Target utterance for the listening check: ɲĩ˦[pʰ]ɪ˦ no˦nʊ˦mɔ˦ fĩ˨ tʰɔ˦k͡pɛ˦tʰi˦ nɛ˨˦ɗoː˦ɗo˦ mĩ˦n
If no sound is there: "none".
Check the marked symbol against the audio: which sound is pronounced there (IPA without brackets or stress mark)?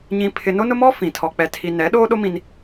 pʰ